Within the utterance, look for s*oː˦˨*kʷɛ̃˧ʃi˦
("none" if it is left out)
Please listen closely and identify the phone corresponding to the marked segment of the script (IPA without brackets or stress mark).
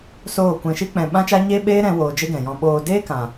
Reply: oː˦˨